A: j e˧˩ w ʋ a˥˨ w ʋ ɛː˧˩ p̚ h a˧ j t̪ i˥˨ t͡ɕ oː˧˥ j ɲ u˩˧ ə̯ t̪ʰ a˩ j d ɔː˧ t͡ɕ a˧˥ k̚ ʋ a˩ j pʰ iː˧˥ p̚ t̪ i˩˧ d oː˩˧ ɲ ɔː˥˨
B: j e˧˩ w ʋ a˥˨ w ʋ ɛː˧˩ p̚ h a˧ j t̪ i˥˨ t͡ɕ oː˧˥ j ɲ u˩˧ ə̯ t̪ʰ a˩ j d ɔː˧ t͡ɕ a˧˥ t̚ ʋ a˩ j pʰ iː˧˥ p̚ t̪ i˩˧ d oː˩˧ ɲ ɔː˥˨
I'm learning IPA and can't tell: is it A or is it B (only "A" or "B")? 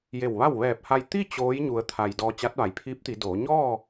B